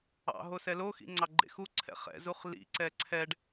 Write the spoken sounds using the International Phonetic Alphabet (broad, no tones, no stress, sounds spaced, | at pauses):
ɑ̰ ɦ o s ɛ l o x ḭ ŋ͡ǀ ɑ ɡ͡ǃ ḛ x u ǀʰ ɛ̰ χ ɛ̰ z u χ l ḭ ǀ ɛ ǀʰ ɛ ɖ